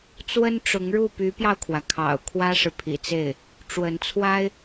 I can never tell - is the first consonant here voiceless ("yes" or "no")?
yes